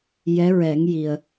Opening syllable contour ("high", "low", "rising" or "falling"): rising